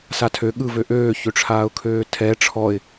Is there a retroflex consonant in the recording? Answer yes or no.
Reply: yes